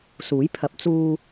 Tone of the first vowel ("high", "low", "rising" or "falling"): rising